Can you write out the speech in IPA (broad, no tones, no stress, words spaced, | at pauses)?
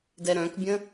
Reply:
dɛɾœ̃kbʲə̃